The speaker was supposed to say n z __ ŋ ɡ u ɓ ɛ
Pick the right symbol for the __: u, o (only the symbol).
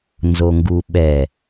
o